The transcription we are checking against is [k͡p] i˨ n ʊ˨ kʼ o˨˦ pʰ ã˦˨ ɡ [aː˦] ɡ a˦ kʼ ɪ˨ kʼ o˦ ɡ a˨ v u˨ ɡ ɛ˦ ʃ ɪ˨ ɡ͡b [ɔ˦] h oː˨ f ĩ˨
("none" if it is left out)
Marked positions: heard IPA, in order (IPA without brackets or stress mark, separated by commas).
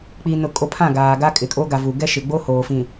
k͡p, aː˨, o˦